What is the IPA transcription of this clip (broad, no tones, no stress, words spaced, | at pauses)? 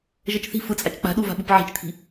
ʒɤt͡ʃθi̤ fɯt͡sʼat͡ʃ k͡pa̤ɗuva̤ɓup ʕi̤t͡ʃt̪ʰi̤